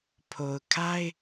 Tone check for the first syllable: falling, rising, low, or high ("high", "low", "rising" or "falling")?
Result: low